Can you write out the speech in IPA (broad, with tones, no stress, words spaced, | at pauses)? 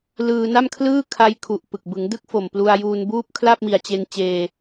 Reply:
lɯː˧na˥˩mkʰlɯː˥˩ kʰa˦˥j kʰu˨˩ʔ pɯ˨˩k̚ bɯ˩˦ŋdɯ˥˩k̚fo˨˩m plu˧a̯juː˧nbuː˥˩p̚ kʰla˥˩p̚mi˨˩a̯t͡ɕe˧n t͡ɕeː˧